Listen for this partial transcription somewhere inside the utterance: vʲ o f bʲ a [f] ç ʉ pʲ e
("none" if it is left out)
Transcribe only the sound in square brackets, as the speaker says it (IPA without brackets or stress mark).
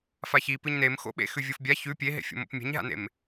none